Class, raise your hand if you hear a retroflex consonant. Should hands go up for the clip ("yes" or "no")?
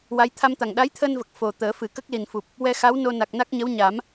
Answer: no